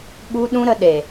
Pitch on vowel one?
high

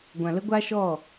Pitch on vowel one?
low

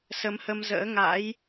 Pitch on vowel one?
rising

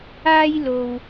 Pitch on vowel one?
high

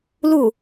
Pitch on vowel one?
falling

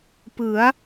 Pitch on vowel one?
rising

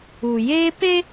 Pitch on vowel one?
low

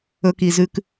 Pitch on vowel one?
high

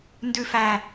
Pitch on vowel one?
low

